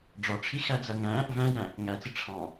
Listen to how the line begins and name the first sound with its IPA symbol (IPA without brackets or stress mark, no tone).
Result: ɖ͡ʐ